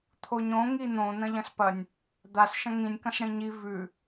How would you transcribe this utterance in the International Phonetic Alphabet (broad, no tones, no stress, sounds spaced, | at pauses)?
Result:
t̪ʰ o ɲ õ ŋ i n̪ õ n̪ ɐ̃ ʎ ɐ̃ s p ɐ nʲ | d̪ a s ʃ ɐ̃ ŋ ĩ nʲ k ɐ̃ s ɽ ĩ ɲ i v ʉ